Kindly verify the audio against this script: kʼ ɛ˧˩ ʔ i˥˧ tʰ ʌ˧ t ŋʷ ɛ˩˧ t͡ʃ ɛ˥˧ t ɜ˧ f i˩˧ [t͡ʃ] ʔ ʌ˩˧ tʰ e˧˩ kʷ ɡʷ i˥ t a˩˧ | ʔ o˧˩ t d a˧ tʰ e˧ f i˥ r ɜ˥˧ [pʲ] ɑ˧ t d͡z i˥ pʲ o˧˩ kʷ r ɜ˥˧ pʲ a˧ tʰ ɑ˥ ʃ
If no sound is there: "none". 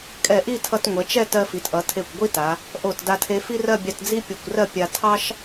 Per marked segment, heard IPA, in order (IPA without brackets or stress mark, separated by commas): t, bʲ